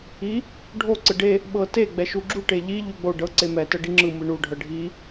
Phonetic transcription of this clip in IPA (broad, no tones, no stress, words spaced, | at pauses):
i | ɖʱo ǀɯɖe | ɓɤte ɡ͡bɛʃuɡ͡ǁu ʈeʎi ʎuɡ͡bo ɖɤ ǀemɛ tɤɖiŋ͡ǁɯ mɯɳu ɖʱɤɖʱi